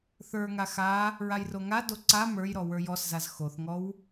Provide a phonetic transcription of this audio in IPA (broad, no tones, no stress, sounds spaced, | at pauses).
θ ə˞ ŋ a x a | ɹ a j r o ŋ a d o ǀ a m ə˞ j ɾ ɔ w ə˞ j ɔ s z a z x o θ ŋ ɔ w